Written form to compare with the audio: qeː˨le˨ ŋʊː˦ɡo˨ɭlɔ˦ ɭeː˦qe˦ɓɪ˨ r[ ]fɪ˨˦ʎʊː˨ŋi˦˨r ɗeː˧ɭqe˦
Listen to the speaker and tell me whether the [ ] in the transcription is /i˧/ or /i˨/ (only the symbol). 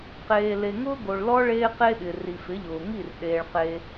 i˨